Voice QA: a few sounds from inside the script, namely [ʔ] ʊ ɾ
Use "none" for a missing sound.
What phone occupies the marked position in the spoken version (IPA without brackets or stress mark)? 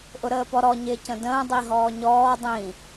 ʔ